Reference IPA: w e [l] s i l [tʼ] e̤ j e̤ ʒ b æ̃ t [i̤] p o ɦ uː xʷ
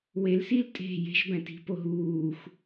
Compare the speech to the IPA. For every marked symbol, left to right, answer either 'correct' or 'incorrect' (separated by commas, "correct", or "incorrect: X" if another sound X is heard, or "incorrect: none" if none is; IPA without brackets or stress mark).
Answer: correct, correct, correct